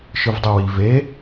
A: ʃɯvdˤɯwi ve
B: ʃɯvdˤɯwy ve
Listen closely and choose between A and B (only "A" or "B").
A